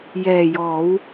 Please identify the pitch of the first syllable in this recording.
low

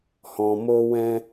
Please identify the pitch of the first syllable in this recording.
low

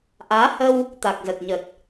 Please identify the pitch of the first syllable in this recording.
rising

